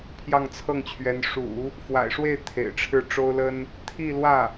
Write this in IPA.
pʰ j ɑ˥˧ ŋ t͡sʰ ɤ˥˩ ŋ t͡ɕʰ ɥ ɛ˧˥ n ʂ ṵ˨˩˦ | f w a̰˨˩ ɪ̯ ʂ w e˥˩ ɪ̯ t̪ʰ ḛ˨˩ ɪ̯ ʈ͡ʂʰ ɻ̩˥˩ ʈ͡ʂ o˥ ʊ̯ l ə˥ n | t̪ʰ i˥˧ l w ä˥˩

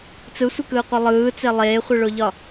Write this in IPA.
t͡s ɯ sʷ ɨ k ɯː qʷ e lˠ ɯː t͡s e lˠ eː χʷ ɯ ɭ o ʎ ɒ

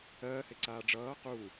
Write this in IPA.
ɜː h e ǀ aː ɖ͡ʐ ʌː q u

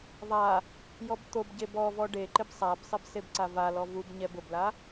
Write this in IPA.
ðˤ a | j ɔ b t̪ o b ɟ e b ɔ v ɔ ɖ e ǃ ɪ b sˤ a b sˤ ɪ b s e b ǀ a v a l ɔ v u b ɲ ɛ b ʊ b l a

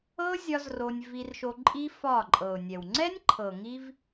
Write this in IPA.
ɤ˦ zʲ ɒ˦ z r o˧ nʲ v i˧ r ʃ o˧ ǃʼ i˦ f ɒ˦˨ ǃʼ ɤ˨ ʊ̯ nʲ ɛ˨ w ŋ͡ǀ ɛ˦ nʲ ǃʰ ɤ˨ ŋ i˧ v

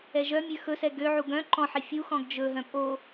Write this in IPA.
ɛ ʒ œ mʲ ø x ɵ s ɛ ɡ ø ʕ u ɡ œ̃ ǃ ɔ̃ ħ i fʲ u x ɔ̃ ɡ d͡ʒ ɵ ɦ œ̃ pʼ o

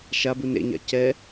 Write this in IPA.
ʃ a b u n ḛ ɲ a̰ c ɛ

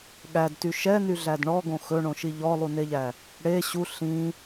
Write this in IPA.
ɠ æ d t y ʃ ɛ n y ɮ æ d ɳ ɔ ɡ õ x ɵ ɳ õ ʃ i ʎ ɔ lˠ u n e ʎ æ | ɽ e ɕ u ɬ ĩ

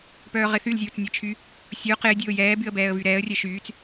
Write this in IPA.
p œː ʁ ɪ θ y l zʲ oː t͡s nʲ ɛ t͡ʃʰ y | sʲ o q ɪː dʲ oː j ɛː b y ə̯ b ɛː ə̯ v y ɾ ɛː ə̯ rʲ ɛ ʃ yː t͡s

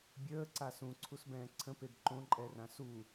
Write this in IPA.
bʲ əː ǀ a s ũ ǀʰ u s b ɛ̃ː ǀʰ ə̃ p e b ǃ õ ǃʼ ɛ r ã s u

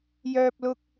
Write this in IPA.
j œː˧ p̚ l ʊ˧ k̚

